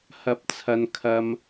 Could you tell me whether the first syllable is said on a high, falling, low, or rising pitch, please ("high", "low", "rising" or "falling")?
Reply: low